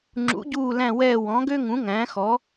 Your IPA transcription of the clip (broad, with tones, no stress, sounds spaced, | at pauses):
ŋ͡ǁ ṵ˨˥ ɟ uː˦˨ l æ̃˦˨ w ɛː˦˨ w ɔ̃˨˥ ɡ ø˥ ŋ ũ˨˥ ŋ æ̃˨˥ x ɔ˨˥